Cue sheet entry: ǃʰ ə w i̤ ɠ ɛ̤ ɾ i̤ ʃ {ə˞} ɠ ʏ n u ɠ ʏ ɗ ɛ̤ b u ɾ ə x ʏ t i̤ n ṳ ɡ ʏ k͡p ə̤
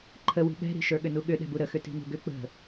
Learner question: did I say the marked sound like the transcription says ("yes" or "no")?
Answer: yes